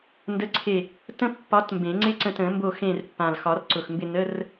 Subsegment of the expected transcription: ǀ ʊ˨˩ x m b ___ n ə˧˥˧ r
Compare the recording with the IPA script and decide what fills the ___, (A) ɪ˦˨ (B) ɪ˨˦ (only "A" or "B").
A